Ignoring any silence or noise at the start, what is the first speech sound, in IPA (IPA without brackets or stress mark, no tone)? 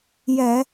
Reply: j